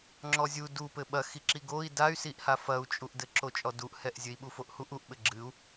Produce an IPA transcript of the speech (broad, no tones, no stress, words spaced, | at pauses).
ŋ͡ǁɔzʲu dupɘ ɓɐxiǁi ɡoi̯ day̯siʔha fɐu̯t͡ʃʼuʔdɘ ǁot͡ʃʼɔduʔhɛʔ zʲɘi̯ɓufoʔhuʔ uʔɓɘ ɡ͡ǁɨu̯